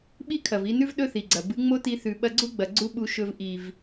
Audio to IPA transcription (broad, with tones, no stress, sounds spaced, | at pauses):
ɓ i˦ kʰ ɐ˨ v i˧ n ʉ˦ v ɗ ɵ˦ θ i˨ ɡ͡ǀ ɐ˨ b ɨ˨˦ ŋ͡m o˦ t i˧ θ ʉ˨ ɓ ɐ˧ ɡ͡ǀ u˦ ɡ͡b ɐ˨ ɡ͡ǀ u˦ ɓ u˧ ʃ ɵ˧ v ʔ i˨ v